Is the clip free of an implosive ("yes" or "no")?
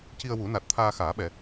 no